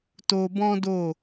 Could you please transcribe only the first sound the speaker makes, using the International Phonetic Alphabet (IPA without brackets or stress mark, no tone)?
t